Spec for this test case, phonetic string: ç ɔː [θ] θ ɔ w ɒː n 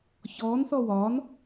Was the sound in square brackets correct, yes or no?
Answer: no